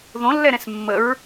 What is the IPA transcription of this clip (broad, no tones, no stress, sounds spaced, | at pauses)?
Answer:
ð õ lː ɛ ɾ ɛ̃ s mː ə ɹ